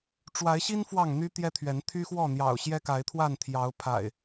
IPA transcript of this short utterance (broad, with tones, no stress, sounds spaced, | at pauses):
ʈ͡ʂ w a˨˦ ɪ̯ ɕ i˦ n f w ɑ˥˨ ŋ n̪ y˦ t̪ j ɛ˦ t̪ʰ ɥ ɛ˨˦ n t̪ʰ y˦ x w ɔ˥˨ n̪ j ɑ̰˨˩ ʊ̯ ɕ j ɛ˦ k a˨˦ ɪ̯ t̪ʰ w a˥˨ n t̪ʰ j ɑ˨˦ ʊ̯ pʰ a̰˨˩ ɪ̯